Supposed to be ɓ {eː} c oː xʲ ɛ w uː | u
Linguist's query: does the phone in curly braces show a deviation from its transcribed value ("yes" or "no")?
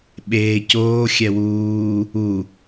no